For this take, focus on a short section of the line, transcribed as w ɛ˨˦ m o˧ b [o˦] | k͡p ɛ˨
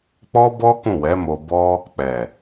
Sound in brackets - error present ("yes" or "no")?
yes